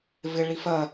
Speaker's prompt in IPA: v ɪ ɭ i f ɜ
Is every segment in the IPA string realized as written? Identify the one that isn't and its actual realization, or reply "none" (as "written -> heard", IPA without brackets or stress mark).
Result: none